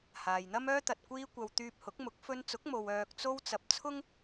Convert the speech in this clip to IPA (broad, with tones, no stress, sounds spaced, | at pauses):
h aː˨ j n̪ ɐ˥ m œː˥ t̪ ɐ˨ t̚ kʷ iː˧ kʷ ɐ˨ w t̪ yː˧ p̚ h ʊ˨˥ k̚ m ʊ˨˥ k̚ f ɵ˧ n t͡s ʊ˨˥ k̚ m o˨ w œː˨ k̚ t͡s o˧ w t͡s ɐ˨ p̚ t͡sʰ ʊ˥ ŋ